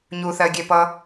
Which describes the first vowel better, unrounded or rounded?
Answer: rounded